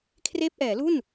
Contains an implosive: no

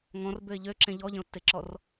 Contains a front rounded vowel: yes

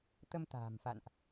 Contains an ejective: no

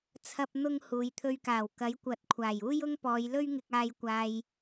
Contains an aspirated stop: yes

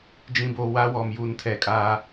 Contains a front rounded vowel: no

